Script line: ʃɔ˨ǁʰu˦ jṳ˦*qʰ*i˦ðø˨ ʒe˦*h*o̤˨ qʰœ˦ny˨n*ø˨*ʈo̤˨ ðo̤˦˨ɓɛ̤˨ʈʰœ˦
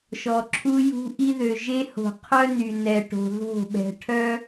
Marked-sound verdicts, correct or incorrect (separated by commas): incorrect, correct, incorrect